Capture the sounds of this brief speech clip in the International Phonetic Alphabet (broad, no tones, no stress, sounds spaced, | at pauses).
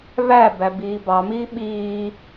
β æ b æ b iː b ɑ m iː ɓ iː